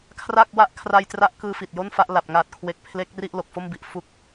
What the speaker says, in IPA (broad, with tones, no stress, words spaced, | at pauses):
kʰra˥˩k̚wa˥˩ʔ kʰra˧jtra˦˥ʔ kɯː˧fi˨˩t̚ jo˥˩nfa˥˩ʔ la˨˩p̚ ŋaː˨˩t̚kʰwe˨˩k̚ pʰle˦˥k̚ri˥˩ʔ lo˨˩k̚fo˥˩mbi˨˩ʔ fu˦˥k̚